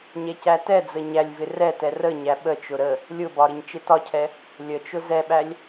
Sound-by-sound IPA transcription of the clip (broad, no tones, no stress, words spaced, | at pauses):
ɲɛcætɛd͡zə ɲælʲvɪ rɛtɛ rə ɲæɓət͡ʃʊ ɾə | lʲʊbɒ ɾɪɲt͡ʃɪtɒcʰɛ | lʲət͡ʃʊ zɛɓælʲ